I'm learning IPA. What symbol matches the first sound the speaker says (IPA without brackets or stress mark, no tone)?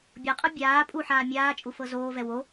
bʲ